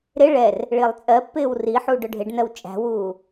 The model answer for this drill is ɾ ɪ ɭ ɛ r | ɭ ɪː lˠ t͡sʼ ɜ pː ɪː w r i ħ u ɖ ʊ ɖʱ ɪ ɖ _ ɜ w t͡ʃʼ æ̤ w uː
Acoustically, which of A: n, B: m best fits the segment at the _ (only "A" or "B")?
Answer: A